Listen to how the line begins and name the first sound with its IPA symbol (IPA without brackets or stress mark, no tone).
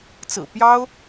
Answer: t͡s